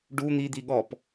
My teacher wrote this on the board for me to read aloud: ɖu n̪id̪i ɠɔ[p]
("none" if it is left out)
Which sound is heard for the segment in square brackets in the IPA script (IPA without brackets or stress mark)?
p